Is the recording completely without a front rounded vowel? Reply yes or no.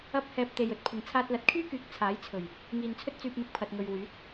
no